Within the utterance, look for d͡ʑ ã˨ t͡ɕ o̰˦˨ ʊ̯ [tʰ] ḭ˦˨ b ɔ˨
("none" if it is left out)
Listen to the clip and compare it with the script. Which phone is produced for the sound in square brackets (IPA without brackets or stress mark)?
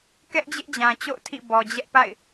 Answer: tʰ